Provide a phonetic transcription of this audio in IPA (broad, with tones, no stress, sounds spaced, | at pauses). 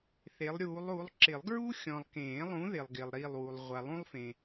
θ e˨˥ lˠ ɾʲ uː˨˥ lˠ u˨˥ lˠ ǁ ɪ˨˩˦ lˠ ɡ ɹ u˥ xʲ ɔ̃˨ lˠ k ẽː˨˩˦ lˠ ũ˨˥ ð ɪ˨ lˠ ɡ ɪː˨ lˠ ɾ i˦˨ lˠ w u˨ lˠ ʁʷ a˨ lˠ ũ˥ lˠ f ẽ˨